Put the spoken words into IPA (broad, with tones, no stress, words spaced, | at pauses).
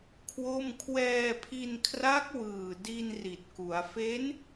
kʰwo˥˩m kʰwɛː˧pʰi˧nkʰra˦˥k̚ wɯː˨˩di˧n ri˨˩t̚ku˩˦a̯ fe˦˥n